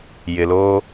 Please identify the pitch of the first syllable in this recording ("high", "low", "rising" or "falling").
low